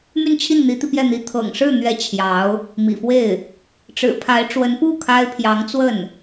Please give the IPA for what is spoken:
m y˥˧ n t͡ɕʰ i˥˩ n n̪ i˧˥ t̪ i˧ p j ɛ˥˩ n̪ i˧˥ t̪ʰ ɤ̰˨˩ ŋ ʂ ɻ̩˥˩ n̪ ɥ ɛ˧˥ t͡ɕʰ j ɑ˧˥ ʊ̯ | m ḭ˨˩ f w e˥˩ ɪ̯ | ʈ͡ʂ ɻ̩˨˩ pʰ a˧˥ ɪ̯ ʈ͡ʂ w ə˧˥ n p u˥˩ kʰ a˥ ɪ̯ pʰ j ɑ˧˥ ŋ t͡s w ə˥˩ n

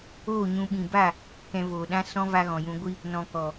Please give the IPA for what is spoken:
oː˦˨ ɲ ũ˧ ɓ ĩ˨ b a˦˨ | k ɛ̃˧ v oː˨ ɗ ã˦ s ɔ̃˦ v a˧ ɣ ɔ̃˨ j ũ˧ ɡʷ i˦ | n ɔ̃˨ k ɔ˨

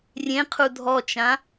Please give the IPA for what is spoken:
rʲ ẽ qʰ u dʱ ɔ t͡ʃ ã

